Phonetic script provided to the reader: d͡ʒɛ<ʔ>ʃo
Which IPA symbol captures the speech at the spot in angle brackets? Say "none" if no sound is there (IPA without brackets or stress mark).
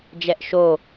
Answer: ʔ